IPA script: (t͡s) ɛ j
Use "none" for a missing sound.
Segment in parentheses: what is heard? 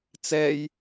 t͡s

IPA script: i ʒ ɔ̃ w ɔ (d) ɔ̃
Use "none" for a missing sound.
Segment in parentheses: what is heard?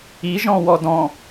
d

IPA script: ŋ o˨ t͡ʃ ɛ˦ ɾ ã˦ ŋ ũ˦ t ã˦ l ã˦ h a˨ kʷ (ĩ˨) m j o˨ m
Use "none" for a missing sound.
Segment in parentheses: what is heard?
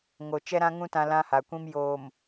ĩ˦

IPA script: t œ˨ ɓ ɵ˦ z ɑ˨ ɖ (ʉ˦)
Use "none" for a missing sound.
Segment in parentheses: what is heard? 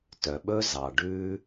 ʉ˦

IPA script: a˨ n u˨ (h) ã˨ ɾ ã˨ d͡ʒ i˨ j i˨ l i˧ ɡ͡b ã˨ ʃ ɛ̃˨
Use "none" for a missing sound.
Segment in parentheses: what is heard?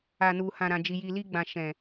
h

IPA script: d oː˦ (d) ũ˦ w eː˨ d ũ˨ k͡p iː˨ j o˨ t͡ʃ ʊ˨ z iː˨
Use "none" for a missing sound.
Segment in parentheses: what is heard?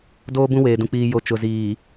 b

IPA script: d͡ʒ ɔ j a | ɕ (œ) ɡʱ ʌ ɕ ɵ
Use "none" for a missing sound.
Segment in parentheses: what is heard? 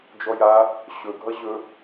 ɵ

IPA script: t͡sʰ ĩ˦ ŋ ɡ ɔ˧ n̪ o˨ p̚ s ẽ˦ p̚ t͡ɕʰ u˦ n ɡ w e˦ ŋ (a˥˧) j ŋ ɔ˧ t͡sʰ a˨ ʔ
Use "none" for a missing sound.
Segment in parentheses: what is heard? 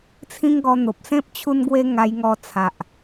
a˧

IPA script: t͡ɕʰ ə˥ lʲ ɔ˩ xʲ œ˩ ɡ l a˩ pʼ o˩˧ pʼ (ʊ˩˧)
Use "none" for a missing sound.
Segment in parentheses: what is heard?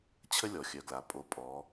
ɔ˩˧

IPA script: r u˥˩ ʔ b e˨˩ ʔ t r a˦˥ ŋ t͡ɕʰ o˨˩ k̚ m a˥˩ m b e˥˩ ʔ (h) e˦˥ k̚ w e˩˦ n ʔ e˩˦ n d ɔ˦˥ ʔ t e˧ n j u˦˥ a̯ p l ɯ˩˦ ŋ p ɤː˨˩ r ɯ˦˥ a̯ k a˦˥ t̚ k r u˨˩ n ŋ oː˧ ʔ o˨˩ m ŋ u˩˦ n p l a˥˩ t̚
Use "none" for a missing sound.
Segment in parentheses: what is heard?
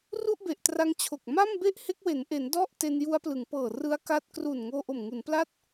h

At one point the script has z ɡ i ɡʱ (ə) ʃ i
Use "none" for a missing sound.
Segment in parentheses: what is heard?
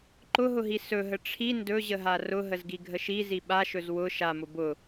ə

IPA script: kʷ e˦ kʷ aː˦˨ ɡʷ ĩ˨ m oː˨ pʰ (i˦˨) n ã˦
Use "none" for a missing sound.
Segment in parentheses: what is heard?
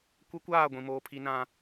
i˦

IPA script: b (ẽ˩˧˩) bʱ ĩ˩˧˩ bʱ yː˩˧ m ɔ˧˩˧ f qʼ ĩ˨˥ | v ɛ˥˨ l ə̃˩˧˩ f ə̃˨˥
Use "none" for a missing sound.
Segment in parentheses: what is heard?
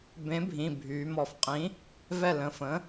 ẽ˨˥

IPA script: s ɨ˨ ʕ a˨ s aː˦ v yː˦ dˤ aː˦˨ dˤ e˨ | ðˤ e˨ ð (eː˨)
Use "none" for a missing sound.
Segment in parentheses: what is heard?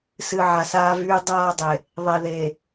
eː˨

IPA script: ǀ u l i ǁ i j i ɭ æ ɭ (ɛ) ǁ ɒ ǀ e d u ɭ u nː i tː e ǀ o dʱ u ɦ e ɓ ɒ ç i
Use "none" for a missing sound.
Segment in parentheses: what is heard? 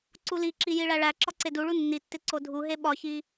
æ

